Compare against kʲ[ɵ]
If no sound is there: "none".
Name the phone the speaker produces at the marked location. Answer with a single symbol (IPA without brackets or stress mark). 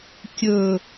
ɵ